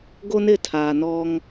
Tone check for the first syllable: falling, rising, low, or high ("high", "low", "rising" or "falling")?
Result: high